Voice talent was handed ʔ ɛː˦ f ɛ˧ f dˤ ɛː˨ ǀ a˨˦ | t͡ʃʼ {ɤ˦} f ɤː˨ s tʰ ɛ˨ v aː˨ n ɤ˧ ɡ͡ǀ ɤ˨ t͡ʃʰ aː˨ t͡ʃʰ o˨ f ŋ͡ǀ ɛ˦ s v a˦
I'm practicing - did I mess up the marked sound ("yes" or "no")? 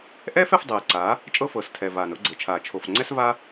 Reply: no